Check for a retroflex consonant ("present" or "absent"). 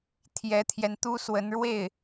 present